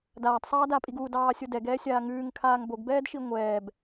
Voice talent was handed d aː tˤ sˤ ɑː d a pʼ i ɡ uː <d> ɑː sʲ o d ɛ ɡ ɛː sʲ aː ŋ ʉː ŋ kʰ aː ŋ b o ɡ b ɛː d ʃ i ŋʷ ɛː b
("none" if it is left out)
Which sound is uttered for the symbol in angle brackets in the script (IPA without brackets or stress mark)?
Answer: d